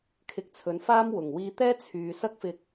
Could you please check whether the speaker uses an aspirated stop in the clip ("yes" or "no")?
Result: yes